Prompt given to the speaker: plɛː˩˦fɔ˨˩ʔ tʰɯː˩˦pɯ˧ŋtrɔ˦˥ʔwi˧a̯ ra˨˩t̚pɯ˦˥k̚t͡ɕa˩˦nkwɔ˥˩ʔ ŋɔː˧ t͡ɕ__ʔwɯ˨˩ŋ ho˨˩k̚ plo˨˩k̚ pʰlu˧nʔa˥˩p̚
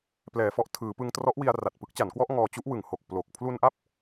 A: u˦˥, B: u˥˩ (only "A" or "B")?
A